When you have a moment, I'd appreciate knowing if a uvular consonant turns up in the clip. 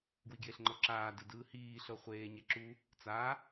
yes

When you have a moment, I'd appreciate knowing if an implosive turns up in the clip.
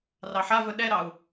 yes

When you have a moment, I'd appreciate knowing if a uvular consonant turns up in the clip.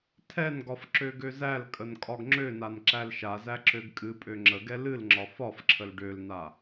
no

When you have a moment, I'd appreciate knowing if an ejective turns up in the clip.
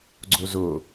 no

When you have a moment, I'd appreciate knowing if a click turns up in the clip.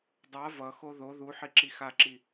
yes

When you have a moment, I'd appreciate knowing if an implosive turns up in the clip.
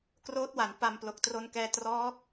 no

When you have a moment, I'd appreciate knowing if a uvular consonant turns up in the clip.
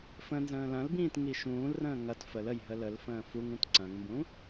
no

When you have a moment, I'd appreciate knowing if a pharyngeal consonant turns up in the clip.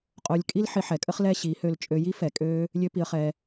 yes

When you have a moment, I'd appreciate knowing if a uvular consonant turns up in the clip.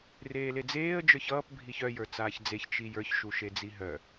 no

